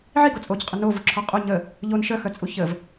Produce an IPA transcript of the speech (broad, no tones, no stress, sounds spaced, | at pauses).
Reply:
ʕ i ɡ o t͡sʼ o c qʼ ə n o v u ǁʰ ɔ qʼ o ɲ ə | ʎ o n ʃ œ x œ t͡sʼ u ç ə v